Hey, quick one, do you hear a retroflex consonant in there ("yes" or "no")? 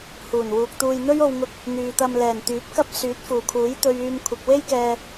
no